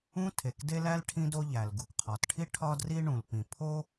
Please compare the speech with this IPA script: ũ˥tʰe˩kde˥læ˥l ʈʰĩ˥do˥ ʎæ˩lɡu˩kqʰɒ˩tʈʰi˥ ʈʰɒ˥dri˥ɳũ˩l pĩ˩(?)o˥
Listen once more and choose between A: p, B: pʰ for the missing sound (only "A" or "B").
B